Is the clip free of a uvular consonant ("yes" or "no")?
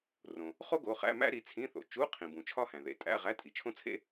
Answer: no